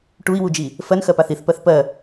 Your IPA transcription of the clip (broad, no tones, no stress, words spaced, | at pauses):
ʈui̯wud͡ʒi | fɜnxɜpaθ iθpɜθ pɜ